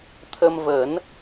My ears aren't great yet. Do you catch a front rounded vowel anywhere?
no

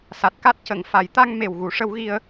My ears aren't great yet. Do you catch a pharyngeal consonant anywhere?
no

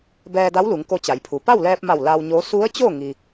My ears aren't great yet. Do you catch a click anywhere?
no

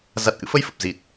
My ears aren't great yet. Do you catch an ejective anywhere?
no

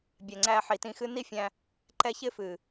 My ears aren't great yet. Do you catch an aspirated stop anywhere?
no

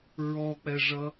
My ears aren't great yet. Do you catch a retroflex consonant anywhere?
yes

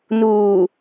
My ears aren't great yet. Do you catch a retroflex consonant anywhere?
no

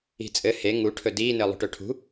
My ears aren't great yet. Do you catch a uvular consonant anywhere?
no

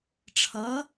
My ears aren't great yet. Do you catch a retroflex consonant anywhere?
yes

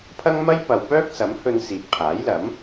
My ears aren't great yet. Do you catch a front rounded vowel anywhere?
yes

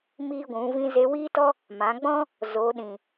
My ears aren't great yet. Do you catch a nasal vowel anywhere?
yes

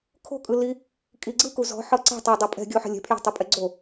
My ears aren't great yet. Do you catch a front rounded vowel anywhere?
no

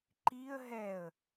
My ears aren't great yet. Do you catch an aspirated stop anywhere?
no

